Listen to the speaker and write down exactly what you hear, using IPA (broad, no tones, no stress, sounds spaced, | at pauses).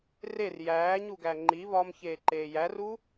r e r j æː ɲ u ɡ æ ŋ͡ǃ i β ɒ m ç eː ǃ eː j æ r u